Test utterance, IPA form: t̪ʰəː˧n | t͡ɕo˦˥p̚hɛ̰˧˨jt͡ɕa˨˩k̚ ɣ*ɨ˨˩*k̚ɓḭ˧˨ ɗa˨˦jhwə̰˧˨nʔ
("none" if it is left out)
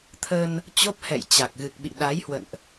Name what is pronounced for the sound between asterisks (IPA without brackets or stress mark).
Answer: ɨ˨˩